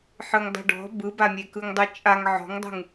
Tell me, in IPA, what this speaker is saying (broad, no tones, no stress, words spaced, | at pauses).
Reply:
ħɯŋdˤṳɖɔ̤ bɯbamʲekɯŋ dˤɯt͡ʃʼaŋ ʕɔ̤ŋdˤṳŋ